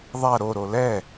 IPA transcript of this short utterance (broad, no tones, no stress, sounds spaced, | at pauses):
ðˤ a ɾ o ɾ o l ɛ